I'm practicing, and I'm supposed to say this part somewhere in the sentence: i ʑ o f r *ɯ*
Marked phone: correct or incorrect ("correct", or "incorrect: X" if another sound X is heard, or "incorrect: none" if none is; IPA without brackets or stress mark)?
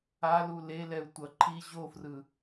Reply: correct